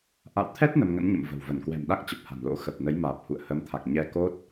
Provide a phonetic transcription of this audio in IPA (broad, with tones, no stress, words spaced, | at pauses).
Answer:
ʔa̰˧˨wt̪ʰɛ˦˥t̚ nə˧mŋə̰˧˥nɲə̰˧˨mvə̤˨˩w və˧˩nkwɛ̤˨˩mɗa˦˥k̚t͡ɕə˨˩p̚ ha̤˨˩nlo̰˧˥ xə˨˩p̚ nə˨˦jmaː˨˩p̚hṵ˧˨ə̯ hə˨˦mt̪ʰa˨˩k̚ ɲɛ˧ ko˦˥t̚